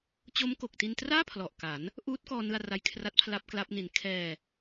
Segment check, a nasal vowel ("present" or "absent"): absent